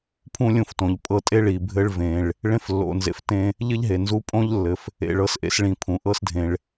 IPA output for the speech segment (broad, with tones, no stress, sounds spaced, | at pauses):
pʰ ũ˥ lʲ ũ˧ f t õ˩ ʎ pʼ ɤ˧ tʼ e˥ ɭ i˩ bʱ ɘ˧ ɭ v ẽ˩ ɭ | ɭ ẽ˥ f lː o̰˩ n z ḛ˩ f t ẽ˧ | ʎ ɘ˥ ʎ ɦ e˩ n z u˧ pʼ õ˥ ʎ lː ɘ˩ f | ḛ˩ ɭ ɤ˧ s ʔ ḛ˧ s ɭ ĩ˩ pʰ ũ˩ ʔ ɤ˥ s dʱ ẽ˩ ɭ